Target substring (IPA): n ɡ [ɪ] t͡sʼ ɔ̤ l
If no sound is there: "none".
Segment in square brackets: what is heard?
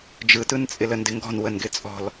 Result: ɪ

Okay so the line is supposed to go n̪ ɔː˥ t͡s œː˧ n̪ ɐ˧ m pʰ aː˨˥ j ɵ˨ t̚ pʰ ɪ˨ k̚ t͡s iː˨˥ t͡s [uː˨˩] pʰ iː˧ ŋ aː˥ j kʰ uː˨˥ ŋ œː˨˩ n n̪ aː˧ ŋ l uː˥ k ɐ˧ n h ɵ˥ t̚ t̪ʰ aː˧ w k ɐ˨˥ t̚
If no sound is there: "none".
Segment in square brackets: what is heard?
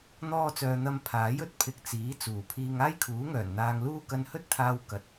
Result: uː˨˩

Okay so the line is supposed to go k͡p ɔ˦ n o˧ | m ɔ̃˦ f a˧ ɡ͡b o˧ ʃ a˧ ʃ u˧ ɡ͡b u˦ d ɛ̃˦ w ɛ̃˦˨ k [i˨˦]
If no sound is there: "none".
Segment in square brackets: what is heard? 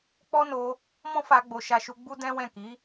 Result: i˨˦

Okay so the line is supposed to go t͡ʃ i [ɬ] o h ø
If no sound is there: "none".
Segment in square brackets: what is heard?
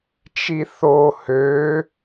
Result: θ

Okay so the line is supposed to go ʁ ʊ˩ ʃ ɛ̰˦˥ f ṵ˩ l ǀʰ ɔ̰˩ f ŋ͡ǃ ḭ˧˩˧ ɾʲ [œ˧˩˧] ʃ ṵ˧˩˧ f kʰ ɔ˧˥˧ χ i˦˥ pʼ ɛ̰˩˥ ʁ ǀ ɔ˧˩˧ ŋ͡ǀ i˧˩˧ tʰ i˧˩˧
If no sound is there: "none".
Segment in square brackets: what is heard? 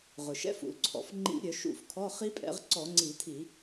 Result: œ˧˩˧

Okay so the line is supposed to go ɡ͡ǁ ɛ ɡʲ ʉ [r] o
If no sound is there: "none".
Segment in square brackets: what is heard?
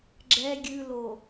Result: l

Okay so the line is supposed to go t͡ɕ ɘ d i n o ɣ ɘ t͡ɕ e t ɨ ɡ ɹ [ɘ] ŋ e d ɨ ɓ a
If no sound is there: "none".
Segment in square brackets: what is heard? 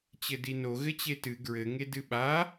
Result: ɘ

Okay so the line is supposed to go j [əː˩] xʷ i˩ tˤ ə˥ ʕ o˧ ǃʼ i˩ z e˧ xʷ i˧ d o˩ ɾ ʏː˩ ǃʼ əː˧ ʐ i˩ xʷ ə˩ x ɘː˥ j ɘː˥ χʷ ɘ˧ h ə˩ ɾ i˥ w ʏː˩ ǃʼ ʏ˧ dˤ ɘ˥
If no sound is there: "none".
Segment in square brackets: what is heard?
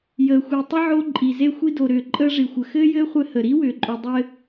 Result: əː˩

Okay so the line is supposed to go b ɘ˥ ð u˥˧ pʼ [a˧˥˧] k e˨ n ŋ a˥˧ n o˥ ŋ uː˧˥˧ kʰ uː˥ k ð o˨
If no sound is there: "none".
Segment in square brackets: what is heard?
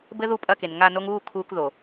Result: ɐ˧˥˧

